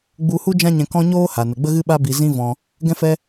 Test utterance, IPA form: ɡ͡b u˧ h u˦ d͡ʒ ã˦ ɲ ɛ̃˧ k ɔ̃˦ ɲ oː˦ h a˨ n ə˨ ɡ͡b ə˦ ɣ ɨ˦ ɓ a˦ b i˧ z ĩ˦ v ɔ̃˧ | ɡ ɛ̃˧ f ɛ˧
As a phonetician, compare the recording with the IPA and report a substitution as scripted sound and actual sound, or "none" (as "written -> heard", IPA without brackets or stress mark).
none